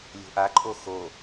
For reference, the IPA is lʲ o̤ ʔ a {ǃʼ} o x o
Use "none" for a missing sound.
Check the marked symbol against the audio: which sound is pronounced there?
ǃʼ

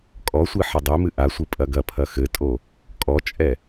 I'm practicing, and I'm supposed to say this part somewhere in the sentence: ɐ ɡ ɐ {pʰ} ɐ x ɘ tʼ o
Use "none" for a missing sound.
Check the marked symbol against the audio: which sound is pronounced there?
pʰ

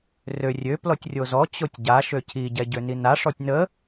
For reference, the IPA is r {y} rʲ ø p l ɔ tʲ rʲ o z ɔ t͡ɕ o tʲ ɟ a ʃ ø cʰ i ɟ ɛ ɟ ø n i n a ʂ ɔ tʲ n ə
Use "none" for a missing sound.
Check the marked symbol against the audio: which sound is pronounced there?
ø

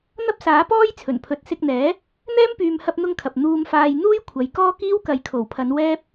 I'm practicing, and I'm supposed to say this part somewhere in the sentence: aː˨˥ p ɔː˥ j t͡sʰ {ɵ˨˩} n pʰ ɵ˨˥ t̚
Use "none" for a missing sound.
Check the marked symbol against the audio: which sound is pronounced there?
ɵ˨˩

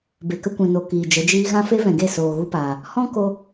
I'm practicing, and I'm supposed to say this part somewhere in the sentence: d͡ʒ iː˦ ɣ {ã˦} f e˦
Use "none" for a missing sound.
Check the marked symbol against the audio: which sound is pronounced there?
ã˦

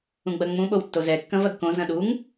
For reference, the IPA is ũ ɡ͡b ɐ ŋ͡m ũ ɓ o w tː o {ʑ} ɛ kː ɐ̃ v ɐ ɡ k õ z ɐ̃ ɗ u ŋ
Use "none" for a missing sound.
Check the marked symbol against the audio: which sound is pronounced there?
z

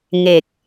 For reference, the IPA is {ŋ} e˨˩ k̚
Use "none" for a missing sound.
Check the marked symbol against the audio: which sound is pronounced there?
ŋ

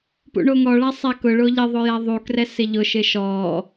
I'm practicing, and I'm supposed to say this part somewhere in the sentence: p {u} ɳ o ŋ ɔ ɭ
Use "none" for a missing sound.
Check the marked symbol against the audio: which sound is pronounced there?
ṵ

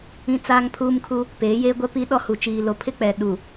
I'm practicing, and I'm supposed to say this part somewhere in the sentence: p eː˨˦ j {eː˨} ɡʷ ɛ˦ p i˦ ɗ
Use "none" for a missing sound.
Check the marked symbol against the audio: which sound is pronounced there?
eː˦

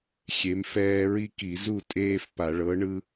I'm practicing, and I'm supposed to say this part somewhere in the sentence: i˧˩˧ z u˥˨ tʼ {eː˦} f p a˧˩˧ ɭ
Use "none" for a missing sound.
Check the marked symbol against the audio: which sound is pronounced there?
eː˦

